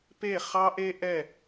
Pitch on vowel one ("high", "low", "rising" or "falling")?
falling